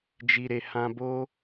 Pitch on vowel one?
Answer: low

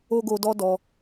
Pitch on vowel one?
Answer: high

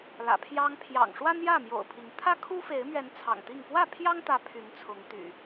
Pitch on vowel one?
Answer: low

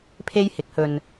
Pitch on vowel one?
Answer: high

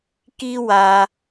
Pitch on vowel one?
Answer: high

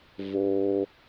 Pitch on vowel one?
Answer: high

